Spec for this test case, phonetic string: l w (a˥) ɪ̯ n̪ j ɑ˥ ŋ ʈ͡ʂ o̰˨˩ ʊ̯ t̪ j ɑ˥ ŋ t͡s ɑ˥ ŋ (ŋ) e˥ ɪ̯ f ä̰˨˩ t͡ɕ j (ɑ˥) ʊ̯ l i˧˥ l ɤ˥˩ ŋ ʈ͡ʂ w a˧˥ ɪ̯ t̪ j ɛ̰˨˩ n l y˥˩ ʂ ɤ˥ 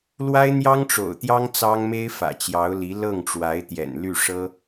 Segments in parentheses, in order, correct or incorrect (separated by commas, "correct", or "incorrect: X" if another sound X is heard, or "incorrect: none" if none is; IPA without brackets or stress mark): correct, incorrect: m, incorrect: ɑ˧˥